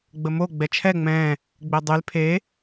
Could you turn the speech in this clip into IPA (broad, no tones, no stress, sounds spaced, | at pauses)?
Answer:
ɡ͡b ə m o ɡ͡b ɛ t͡ʃʰ ɛ ŋ͡m ɛ̃ː | ɡ͡b e dˤ y l pʰ e